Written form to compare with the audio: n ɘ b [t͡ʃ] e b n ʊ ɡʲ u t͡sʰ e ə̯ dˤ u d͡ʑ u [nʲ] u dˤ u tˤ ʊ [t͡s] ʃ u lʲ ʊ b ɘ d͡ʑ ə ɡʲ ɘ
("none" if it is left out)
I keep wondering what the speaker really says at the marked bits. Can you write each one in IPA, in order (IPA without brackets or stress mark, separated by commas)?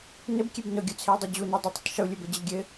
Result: kʲ, n, tˤ